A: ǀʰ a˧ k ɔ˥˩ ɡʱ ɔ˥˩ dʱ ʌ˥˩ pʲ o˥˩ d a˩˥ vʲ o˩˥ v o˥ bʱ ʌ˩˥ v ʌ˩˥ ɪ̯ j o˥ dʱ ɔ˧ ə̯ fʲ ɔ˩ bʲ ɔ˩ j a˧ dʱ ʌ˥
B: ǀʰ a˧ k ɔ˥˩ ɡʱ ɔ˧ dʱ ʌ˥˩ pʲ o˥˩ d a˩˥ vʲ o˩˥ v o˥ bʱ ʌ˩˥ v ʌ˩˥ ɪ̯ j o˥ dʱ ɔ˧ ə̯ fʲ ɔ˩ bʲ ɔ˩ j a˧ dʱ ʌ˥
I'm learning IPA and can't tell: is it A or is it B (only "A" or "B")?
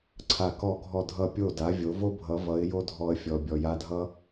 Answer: A